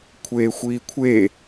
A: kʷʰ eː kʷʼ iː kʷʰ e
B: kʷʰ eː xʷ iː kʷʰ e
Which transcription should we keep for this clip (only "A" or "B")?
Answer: B